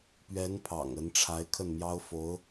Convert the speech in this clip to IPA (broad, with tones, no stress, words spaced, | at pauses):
pɥɛ˧˥npʰɑ̰˨˩ŋ ə˧˥nʈ͡ʂʰa˧˥ɪ̯kʰə˥˩nmjɑ˥ʊ̯ fo˧˥ʊ̯